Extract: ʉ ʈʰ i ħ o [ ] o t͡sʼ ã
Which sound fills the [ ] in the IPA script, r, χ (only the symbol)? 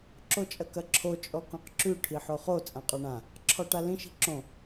χ